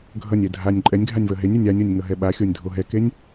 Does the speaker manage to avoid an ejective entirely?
no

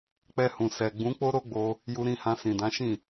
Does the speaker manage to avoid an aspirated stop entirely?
yes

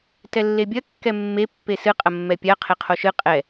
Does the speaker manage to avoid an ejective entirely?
no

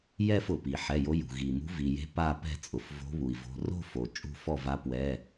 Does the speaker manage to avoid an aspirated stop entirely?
yes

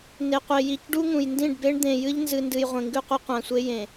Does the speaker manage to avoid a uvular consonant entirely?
no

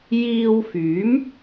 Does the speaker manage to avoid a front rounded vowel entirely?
no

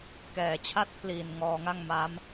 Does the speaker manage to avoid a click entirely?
yes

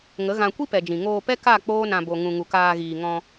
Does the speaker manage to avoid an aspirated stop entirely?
yes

